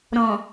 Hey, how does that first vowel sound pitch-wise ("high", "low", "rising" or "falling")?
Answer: low